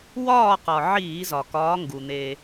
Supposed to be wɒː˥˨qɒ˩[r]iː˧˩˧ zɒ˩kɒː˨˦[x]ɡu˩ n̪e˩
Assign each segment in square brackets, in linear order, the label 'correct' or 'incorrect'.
incorrect: ʕ, incorrect: ŋ

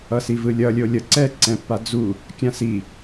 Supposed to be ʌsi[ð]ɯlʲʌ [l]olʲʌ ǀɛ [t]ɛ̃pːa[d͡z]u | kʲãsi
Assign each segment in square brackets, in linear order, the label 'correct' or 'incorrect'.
incorrect: v, incorrect: lʲ, incorrect: ǀ, correct

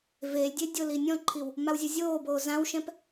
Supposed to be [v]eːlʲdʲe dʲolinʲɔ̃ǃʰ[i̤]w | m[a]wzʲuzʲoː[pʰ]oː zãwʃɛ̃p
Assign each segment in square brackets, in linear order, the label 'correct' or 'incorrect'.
correct, incorrect: i, correct, incorrect: b

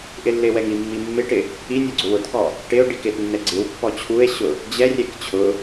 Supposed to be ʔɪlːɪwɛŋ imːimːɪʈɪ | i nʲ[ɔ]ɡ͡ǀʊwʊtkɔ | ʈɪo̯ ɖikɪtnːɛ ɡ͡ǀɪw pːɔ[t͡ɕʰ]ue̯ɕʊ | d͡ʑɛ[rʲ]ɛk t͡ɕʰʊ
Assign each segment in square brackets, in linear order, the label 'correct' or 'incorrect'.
correct, correct, correct

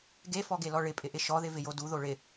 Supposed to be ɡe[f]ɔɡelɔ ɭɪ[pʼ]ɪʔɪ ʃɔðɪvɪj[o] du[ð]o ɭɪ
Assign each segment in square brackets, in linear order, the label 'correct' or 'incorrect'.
correct, correct, correct, correct

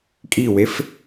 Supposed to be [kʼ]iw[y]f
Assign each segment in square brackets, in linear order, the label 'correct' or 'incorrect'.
correct, incorrect: e

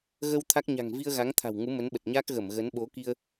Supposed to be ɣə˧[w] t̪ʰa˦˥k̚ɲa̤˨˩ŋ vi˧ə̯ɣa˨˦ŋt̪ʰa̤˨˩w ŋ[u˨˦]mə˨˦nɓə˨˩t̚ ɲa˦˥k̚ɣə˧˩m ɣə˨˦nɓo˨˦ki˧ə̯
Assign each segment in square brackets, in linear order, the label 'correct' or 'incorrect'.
correct, correct

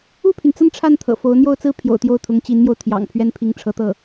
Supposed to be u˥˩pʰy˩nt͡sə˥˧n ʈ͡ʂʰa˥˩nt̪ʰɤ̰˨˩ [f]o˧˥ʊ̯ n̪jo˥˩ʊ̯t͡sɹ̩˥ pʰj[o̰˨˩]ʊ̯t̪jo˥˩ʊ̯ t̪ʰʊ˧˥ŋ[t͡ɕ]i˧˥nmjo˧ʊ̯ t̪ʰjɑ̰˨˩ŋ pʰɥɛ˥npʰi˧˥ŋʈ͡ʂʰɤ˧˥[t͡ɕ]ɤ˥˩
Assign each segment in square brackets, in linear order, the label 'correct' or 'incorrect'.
correct, correct, correct, incorrect: t̪

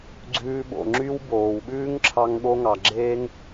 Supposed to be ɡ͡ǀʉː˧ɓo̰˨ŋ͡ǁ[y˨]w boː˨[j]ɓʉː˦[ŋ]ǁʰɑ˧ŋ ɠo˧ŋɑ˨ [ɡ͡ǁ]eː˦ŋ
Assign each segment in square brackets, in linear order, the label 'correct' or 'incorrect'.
incorrect: y˦, incorrect: w, correct, correct

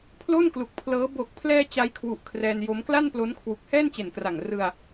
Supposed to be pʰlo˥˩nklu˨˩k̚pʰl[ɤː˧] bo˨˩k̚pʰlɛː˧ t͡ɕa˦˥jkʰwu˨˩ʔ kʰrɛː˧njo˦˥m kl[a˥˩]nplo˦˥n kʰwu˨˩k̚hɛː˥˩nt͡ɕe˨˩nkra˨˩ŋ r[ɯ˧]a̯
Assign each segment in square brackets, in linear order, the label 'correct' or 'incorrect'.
incorrect: ɤː˦˥, correct, correct

